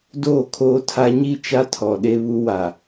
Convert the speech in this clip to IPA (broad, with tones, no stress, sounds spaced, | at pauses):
d oː˦˨ kʰ oː˦ tʰ a˦ ɲ i˦˨ t͡ʃ a˦ tʰ ɔ˨ ɗ e˦ β u˦ w a˨